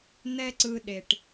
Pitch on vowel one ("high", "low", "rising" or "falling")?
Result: high